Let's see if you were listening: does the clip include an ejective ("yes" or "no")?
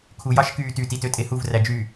yes